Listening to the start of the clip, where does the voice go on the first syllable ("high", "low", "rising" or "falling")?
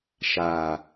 low